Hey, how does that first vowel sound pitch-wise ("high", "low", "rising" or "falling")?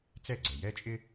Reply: falling